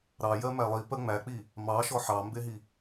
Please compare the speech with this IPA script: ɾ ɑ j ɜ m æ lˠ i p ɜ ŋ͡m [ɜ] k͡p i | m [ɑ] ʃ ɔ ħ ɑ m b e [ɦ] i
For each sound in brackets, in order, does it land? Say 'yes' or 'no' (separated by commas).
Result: no, yes, yes